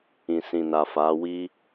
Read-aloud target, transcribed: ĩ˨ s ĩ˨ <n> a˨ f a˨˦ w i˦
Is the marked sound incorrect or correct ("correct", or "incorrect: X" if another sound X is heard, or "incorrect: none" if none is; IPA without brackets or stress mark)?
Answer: correct